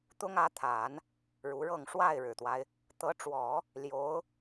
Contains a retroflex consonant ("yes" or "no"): yes